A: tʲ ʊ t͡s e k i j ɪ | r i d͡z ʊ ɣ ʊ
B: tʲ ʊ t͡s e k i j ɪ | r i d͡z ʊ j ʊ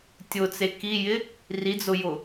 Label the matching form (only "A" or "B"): B